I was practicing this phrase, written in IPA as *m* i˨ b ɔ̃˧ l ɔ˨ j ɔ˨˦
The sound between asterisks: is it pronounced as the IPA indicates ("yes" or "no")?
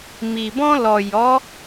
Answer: yes